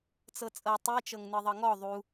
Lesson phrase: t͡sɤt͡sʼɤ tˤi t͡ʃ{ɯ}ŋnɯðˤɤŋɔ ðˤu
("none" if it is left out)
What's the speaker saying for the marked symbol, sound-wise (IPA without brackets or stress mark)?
ɤ